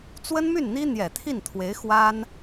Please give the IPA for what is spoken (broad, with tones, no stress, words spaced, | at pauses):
t͡swə˥nmy˥˩nn̪i˥ n̪jɛ˨˩t̪ʰi˥˩n t̪ʰwe˧˥ɪ̯xwa˥n